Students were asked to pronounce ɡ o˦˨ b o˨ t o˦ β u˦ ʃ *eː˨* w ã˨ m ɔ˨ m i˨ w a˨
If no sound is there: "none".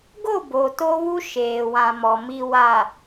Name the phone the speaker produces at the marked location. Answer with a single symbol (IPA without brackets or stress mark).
eː˨